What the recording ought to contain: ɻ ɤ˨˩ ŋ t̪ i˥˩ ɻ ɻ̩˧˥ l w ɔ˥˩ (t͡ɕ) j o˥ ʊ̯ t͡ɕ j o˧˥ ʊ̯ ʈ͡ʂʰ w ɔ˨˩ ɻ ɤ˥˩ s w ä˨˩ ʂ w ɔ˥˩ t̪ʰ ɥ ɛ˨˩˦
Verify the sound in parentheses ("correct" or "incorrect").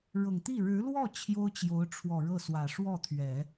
incorrect